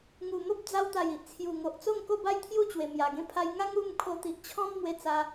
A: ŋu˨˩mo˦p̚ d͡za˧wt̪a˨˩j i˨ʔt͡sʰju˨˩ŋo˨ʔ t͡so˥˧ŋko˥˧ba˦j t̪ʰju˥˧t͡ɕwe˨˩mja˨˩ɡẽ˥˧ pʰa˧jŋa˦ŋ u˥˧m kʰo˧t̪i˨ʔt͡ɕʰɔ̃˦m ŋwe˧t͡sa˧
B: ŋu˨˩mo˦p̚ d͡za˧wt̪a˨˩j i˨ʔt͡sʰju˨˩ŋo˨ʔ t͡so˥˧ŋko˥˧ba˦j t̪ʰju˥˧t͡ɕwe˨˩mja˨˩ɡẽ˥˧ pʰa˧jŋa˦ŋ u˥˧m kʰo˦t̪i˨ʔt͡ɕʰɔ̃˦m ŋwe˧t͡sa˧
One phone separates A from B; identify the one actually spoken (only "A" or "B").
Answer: A